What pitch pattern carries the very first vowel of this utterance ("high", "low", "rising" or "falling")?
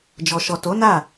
low